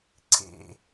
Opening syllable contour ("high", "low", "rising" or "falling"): low